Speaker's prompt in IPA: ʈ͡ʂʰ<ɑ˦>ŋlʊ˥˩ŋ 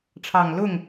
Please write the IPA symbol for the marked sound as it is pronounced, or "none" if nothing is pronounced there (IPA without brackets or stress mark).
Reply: ɑ˨˩